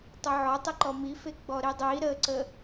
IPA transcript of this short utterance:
tˤ ɨ ʕ ɔ tˤ ɨ ǃ ɔ m i f e ɡ͡b ɔ ɾ i dˤ i ɾ ə ǀ ə

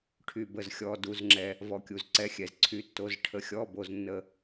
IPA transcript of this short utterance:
ʈʰ y˩ b ə˩ z xʲ ɔ˩ d u˩ z ŋ͡ǁ ɛ˩ | v ɔ˩ kʲ u˩ z ǀ ɛ˩˧˩ xʲ ɛ˩ z ǀʰ y˩˧˩ tː o˩˧˩ z ʈʰ ə˩ xʲ ɔ˩˧˩ b o˩ z nː ə˩

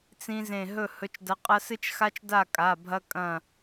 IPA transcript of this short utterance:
t͡s ĩ˥ z ẽ˥˨ ɦ ɵ˥˨ h ɵ˧˥ t͡ʃ d ɐ˧˥ qʼ ɐ˥ s ɨ˥ t͡ʃ x a˥ t͡ʃ d a˥˨ kʼ a˩˧˩ bʱ ɐ˥ kʼ ɐ̃˥˨

